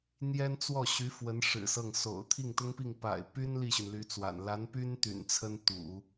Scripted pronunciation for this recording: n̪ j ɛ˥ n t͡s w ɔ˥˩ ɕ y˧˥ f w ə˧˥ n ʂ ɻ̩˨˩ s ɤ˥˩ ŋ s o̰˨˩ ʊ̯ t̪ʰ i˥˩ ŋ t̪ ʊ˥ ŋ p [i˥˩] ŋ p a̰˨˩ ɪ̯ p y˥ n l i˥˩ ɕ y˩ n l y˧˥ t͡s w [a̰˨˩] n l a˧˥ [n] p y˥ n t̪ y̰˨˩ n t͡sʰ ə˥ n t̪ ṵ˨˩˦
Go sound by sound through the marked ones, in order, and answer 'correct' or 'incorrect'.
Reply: correct, correct, correct

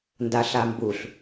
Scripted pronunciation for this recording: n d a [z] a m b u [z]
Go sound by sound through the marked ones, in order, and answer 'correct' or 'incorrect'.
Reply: incorrect, incorrect

